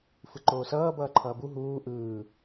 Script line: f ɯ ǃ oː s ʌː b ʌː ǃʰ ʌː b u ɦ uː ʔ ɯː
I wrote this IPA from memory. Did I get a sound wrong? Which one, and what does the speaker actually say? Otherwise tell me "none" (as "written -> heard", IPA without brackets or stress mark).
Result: none